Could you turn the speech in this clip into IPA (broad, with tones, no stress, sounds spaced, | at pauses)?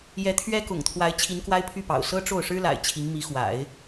j ɛ˧˥ t̪ʰ ɥ ɛ˥ k ʊ̰˨˩ ŋ t̪ʰ w a˧˥ ɪ̯ t͡ɕʰ i˧˥ n k w a˥ ɪ̯ pʰ y˥˩ p ɑ̰˨˩ ʊ̯ s ɤ˥ ʈ͡ʂ o˥˩ ʊ̯ ʂ ɻ̩˥ l a̰˨˩ ɪ̯ t͡ɕʰ i˧˥ ŋ m i˧˥ x w a̰˨˩˦ ɪ̯